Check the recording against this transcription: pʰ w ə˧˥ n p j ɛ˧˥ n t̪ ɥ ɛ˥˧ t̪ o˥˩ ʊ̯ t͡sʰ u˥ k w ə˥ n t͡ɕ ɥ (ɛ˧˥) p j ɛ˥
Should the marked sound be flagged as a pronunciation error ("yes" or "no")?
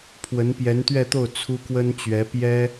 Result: no